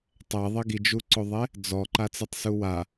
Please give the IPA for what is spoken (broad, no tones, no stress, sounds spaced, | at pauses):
tˤ ɛ ðˤ ɪ ɡ i d͡ʒ u ǀ o ðˤ e | d͡z ɔ ǃ a t͡s e tˤ s u w a